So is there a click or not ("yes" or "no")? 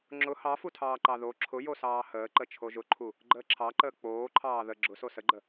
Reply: yes